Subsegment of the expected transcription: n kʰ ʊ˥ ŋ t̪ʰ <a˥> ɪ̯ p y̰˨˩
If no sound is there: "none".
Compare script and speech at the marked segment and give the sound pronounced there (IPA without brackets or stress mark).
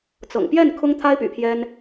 a˥